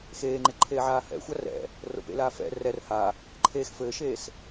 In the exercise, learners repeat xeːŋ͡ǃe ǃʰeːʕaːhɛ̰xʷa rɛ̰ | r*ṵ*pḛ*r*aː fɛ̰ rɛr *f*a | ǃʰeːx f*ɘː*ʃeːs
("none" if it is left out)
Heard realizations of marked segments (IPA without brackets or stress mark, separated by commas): o̰, l, h, ɘː